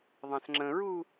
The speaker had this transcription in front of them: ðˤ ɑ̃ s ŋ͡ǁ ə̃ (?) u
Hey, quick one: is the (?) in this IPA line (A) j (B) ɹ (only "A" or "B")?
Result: B